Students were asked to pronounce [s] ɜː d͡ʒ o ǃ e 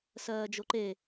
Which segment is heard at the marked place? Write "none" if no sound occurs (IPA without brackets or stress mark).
s